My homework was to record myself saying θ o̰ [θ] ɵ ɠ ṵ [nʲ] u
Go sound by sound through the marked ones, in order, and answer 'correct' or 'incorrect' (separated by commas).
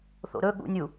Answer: incorrect, correct